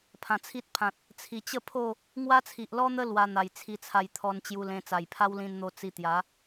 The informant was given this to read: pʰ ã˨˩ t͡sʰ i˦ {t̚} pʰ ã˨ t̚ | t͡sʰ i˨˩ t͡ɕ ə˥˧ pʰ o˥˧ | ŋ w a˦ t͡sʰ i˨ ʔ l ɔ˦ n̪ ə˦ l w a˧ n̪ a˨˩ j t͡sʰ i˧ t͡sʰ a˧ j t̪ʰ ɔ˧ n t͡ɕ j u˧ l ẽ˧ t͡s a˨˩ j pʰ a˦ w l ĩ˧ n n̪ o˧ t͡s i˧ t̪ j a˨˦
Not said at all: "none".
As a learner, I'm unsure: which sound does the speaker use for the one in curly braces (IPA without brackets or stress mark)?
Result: t̚